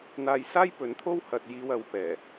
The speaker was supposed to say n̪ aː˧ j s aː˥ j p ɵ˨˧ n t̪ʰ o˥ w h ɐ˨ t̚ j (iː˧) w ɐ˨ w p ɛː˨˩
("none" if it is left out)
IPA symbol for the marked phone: iː˧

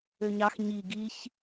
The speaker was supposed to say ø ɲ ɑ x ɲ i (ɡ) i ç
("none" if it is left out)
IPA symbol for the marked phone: ɡ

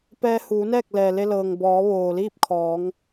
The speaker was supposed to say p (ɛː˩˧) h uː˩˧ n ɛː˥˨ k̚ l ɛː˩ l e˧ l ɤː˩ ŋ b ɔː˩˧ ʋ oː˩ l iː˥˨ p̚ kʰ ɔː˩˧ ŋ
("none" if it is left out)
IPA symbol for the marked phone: ɛː˧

